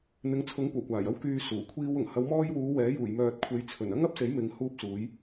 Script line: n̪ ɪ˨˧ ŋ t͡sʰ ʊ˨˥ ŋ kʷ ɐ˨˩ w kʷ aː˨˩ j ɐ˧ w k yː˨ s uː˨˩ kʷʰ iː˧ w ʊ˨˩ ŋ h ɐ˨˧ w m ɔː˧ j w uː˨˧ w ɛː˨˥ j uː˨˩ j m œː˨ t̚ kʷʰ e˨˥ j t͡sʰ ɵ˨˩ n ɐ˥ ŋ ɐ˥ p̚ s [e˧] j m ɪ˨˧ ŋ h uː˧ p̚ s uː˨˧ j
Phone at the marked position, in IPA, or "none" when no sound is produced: e˨˥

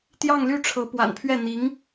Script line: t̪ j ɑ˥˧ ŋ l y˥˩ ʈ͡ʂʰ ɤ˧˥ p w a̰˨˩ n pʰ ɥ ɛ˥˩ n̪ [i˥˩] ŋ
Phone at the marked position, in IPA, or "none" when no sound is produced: i˧˥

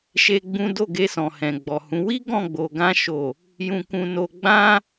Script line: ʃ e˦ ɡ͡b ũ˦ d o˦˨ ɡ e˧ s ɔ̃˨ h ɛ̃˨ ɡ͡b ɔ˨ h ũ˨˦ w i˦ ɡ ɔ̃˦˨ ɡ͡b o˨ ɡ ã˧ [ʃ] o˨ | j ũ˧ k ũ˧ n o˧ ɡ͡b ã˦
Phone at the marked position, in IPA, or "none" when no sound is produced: ʃ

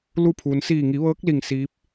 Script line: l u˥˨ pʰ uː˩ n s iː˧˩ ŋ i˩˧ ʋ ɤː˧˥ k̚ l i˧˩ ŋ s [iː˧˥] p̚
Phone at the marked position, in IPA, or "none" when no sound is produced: iː˧˥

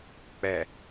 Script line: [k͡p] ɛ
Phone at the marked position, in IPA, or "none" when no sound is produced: k͡p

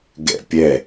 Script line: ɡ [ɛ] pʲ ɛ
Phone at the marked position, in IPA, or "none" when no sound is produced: ɛ̰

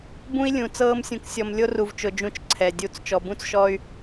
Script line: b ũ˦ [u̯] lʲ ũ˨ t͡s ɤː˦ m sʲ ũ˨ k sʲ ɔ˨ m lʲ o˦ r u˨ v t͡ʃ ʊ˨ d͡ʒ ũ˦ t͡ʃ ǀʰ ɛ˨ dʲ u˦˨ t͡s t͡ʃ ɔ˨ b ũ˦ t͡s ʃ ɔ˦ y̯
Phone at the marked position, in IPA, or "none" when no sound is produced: i̯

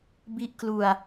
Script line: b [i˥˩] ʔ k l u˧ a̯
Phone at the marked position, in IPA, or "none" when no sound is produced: i˦˥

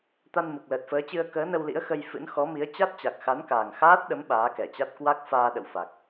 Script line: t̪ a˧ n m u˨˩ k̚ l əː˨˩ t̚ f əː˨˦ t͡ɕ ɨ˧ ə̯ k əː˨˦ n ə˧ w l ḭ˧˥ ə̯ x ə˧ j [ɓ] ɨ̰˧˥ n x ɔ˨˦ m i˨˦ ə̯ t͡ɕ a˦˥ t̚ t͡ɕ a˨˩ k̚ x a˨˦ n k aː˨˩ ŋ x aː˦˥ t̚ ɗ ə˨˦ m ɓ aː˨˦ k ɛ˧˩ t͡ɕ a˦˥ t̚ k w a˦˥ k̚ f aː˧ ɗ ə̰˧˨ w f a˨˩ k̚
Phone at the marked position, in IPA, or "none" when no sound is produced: f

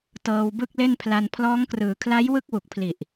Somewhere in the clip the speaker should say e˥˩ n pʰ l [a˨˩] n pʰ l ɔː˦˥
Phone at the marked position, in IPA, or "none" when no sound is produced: a˧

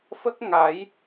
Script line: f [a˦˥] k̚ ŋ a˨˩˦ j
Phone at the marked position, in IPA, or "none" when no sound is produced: ə˦˥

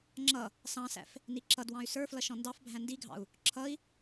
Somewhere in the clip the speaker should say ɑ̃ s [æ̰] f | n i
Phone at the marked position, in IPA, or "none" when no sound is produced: æ̰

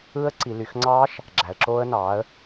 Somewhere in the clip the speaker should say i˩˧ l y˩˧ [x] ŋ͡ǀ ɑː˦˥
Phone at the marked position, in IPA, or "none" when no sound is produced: x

